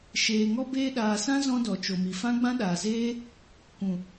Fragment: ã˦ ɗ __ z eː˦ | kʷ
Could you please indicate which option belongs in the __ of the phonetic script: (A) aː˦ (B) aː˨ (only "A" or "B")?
B